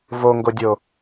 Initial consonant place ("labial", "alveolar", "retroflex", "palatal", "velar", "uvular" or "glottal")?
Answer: labial